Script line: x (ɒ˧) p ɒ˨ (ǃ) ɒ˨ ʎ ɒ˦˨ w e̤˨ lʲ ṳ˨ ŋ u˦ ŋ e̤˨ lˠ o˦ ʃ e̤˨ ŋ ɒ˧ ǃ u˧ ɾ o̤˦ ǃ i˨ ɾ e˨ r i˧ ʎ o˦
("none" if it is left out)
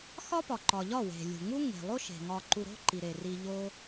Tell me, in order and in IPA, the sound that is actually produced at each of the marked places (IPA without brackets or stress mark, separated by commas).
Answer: ɒ˦, ǃ